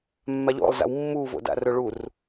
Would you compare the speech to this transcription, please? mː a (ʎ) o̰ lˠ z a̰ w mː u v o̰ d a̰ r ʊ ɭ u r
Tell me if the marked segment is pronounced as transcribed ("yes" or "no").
yes